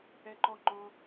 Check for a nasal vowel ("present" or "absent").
present